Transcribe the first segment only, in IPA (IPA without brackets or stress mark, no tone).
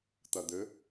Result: t̪